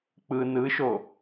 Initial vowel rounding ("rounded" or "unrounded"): unrounded